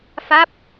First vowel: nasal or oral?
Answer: oral